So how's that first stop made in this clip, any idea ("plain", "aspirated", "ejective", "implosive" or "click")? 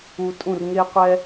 ejective